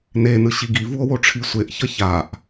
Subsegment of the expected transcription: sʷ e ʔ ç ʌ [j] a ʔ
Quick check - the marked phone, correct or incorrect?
incorrect: ç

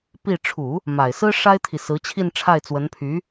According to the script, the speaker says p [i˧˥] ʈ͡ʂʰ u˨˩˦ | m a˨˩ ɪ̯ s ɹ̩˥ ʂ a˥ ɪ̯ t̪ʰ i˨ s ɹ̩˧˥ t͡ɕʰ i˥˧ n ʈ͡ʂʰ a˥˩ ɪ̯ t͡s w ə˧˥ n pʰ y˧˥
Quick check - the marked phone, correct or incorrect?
incorrect: i˥˩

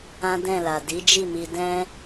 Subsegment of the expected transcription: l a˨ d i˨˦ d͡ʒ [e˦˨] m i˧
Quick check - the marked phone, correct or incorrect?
incorrect: i˦˨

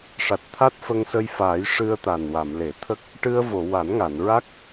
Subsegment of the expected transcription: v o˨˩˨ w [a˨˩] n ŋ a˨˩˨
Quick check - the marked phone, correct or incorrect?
incorrect: a˨˩˦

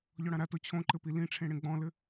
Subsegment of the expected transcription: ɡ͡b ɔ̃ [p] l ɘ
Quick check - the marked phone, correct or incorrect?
incorrect: none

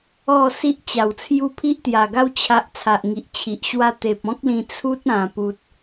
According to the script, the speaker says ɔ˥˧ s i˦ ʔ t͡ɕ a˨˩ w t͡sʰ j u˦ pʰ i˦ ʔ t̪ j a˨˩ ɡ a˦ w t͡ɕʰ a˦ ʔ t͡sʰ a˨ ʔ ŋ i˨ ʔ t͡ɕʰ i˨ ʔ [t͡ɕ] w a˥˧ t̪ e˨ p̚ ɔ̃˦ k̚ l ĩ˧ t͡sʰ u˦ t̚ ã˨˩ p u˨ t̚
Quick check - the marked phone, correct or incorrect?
incorrect: ɕ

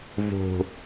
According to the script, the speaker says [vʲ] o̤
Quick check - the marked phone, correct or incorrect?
incorrect: v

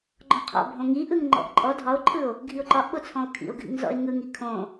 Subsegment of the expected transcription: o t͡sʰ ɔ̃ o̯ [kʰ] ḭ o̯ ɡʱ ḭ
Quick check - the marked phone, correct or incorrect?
correct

